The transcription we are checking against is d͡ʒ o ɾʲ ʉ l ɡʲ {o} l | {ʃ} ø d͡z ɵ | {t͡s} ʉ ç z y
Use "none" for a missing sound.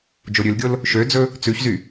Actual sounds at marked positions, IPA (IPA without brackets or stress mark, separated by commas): o, ʃ, t͡s